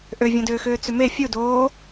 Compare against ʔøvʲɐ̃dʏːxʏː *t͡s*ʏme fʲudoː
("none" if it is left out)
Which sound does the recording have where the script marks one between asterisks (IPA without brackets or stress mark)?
t͡s